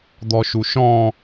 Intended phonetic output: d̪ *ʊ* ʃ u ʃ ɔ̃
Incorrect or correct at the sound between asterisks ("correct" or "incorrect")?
incorrect